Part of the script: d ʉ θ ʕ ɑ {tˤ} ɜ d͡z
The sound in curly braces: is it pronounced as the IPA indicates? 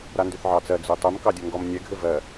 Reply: no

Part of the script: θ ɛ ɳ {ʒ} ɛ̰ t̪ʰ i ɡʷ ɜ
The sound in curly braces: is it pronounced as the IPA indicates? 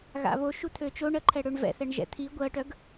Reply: yes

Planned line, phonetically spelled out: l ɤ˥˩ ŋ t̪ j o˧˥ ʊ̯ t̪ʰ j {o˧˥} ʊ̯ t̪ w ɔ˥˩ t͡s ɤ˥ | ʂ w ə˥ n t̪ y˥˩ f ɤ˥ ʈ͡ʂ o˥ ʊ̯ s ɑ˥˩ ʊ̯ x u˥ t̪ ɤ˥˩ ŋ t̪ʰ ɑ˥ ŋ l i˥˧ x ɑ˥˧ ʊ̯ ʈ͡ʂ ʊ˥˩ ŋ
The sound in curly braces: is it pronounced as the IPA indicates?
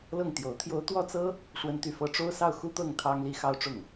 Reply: no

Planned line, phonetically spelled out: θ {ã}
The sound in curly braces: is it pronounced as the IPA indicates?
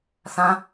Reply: yes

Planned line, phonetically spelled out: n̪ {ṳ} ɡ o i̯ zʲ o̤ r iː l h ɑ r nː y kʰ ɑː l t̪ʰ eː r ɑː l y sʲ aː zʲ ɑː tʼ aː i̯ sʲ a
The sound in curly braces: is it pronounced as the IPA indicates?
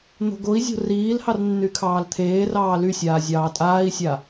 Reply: no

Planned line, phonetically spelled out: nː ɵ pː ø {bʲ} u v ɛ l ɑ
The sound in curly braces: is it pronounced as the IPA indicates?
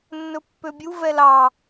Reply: yes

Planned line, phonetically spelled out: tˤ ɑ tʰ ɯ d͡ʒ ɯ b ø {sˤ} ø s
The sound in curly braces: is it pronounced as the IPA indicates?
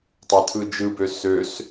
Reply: no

